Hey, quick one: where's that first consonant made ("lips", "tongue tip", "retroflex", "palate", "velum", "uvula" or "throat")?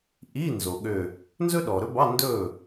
throat